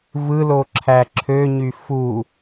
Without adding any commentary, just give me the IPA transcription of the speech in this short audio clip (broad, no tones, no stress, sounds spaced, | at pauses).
v ɯ l o ǁʰ æ ǁʰ ø ɲ y f u